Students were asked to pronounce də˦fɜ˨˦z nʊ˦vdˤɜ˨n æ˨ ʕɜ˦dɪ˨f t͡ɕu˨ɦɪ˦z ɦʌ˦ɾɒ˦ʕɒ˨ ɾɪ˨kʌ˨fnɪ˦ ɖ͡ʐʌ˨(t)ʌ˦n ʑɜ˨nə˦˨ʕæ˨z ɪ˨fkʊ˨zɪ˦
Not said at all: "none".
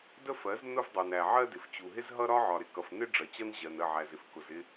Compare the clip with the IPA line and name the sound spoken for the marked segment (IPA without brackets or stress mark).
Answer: t͡ɕ